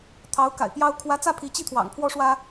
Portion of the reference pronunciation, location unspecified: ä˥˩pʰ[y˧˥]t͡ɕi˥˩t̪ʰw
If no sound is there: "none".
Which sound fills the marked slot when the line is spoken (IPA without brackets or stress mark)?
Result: i˧˥